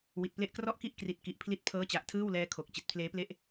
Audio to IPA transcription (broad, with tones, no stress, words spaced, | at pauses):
wi˨˩t̚ple˥˩ʔ krɔ˥˩ʔki˥˩ʔkri˨˩t̚ ki˨˩ʔpʰli˦˥t̚pʰɤː˦˥ t͡ɕa˨˩ʔtʰɯː˥˩wlɛː˦˥ kʰo˨˩k̚ t͡ɕi˨˩t̚pʰleː˦˥ple˥˩ʔ